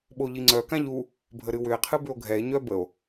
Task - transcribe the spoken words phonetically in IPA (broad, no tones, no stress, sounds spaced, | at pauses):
ɓ o ʎ i ŋ͡ǀ œ k ã ʎ u | bʱ ə ɾ ɨ w ʏ e̯ qʰ ɨ b ʏ o̯ ɡʱ ɛ e̯ ɲ œ b ə o̯